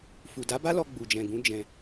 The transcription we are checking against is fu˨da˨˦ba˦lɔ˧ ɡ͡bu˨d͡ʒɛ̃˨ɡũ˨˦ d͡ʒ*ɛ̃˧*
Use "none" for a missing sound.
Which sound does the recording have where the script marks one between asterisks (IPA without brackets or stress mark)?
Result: ɛ̃˧